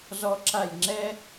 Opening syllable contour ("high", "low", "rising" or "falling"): high